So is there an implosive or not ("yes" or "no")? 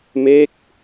no